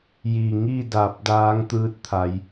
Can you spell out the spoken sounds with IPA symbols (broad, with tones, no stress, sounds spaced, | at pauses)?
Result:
j i˧˩ ŋ i˥˨ d a˧˩ p̚ d aː˧˥ ŋ t̪ ɯː˧˥ t̚ t̪ʰ a˩˧ j